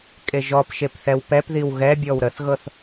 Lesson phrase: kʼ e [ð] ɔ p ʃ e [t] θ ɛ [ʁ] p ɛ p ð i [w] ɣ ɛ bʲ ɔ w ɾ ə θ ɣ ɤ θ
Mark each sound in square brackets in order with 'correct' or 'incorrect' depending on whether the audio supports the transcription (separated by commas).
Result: incorrect, incorrect, incorrect, correct